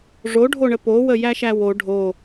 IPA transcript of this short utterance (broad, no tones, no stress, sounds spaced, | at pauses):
ʐ o ɖʱ o ɳ ə p o w ə j æ ʃ æ w o ɖʱ o